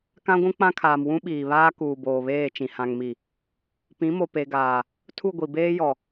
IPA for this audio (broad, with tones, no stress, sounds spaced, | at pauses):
k ã˦ ɡʷ ũ˦ k͡p ã˦ kʰ aː˨ m w ũ˦ ɓ iː˨ β aː˦ k uː˨ b oː˨ β eː˦˨ t͡ʃ ĩ˨ h ã˨ ŋ m i˨ | p ĩ˨˦ m o˨ p e˨ ɡ aː˨ | tʰ u˦˨ ɡʷ i˨ b eː˦ j ɔ˨